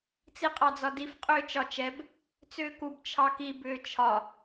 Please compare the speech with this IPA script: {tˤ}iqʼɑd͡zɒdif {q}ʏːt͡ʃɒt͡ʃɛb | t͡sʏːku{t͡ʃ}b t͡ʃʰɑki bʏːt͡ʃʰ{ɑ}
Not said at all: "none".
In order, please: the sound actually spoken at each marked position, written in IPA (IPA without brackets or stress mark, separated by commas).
t͡s, qʼ, none, ɒ